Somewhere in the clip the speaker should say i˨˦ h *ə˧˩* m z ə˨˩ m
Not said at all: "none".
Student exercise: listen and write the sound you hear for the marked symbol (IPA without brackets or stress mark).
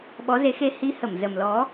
ə˧˩